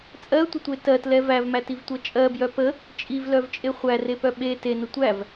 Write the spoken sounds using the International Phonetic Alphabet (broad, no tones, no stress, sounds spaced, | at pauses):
t͡sʼ ɜ tʷ ə tʷ e t ɜ t l ɛ v æ v m æ t i v tʷ ɜ t͡ʃʼ ɜ b j œ p ə | t͡ʃʼ i v l œ v t͡ʃʼ e χʷ æ r e p œ ɓ e t e n ə tʷ æ v